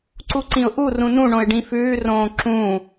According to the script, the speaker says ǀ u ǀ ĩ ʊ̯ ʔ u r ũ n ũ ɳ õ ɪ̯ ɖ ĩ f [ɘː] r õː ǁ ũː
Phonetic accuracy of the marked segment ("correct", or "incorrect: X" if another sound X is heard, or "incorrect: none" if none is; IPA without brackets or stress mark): incorrect: ʉː